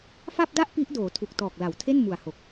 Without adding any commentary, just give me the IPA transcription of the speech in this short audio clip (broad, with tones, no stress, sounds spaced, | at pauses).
f a˥˩ p̚ d a˥˩ ʔ p i˦˥ ʔ d oː˩˦ tʰ u˨˩ k̚ t ɔː˨˩ k̚ l a˩˦ w tʰ e˥˩ n m u˨˩ a̯ h o˨˩ k̚